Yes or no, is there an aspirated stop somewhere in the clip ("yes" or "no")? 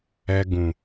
no